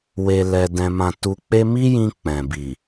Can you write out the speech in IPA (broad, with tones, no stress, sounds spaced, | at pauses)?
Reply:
w e˧ l ɛ˧ d ɛ̃˧ m ã˧ t u˧ k͡p e˦ m i˦ j ĩ˧ k͡p ɛ̃˨ b i˨